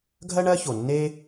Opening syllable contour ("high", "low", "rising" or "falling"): high